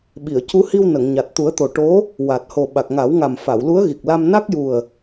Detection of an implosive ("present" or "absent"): present